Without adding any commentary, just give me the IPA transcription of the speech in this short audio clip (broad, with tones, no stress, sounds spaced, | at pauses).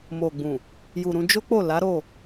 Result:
m o˨ ɡ͡b ũ˨ | j u˨ ɾ ũ˧ d͡ʒ o˦ k͡p o˦˨ l a˨˦ ɾ o˦˨